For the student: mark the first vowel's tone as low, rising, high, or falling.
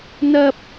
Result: high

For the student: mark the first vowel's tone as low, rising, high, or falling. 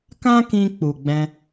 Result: high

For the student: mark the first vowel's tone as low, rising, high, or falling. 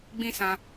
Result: high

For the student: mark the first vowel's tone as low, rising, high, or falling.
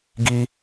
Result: high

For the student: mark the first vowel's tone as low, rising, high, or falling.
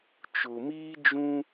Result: low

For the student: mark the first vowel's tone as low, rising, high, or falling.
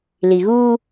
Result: low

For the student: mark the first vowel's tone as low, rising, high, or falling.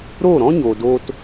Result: falling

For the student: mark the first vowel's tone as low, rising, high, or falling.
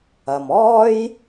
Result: low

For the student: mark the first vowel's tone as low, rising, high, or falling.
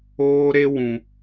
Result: high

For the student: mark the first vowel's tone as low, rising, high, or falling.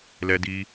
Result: high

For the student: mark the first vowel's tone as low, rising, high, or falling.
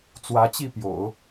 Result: rising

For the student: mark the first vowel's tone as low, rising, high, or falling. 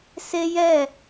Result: high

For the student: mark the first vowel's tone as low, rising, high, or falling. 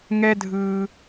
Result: high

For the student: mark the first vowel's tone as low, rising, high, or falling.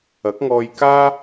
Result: rising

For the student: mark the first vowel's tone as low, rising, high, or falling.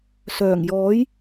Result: low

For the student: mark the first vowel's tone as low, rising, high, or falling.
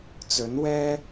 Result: rising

